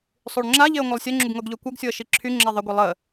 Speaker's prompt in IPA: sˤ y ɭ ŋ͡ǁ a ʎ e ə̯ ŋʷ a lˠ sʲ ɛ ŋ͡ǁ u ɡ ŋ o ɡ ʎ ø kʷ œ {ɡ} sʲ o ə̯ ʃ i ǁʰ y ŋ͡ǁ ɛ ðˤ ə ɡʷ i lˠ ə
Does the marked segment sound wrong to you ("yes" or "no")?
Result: no